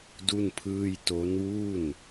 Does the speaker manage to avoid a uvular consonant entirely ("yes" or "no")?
yes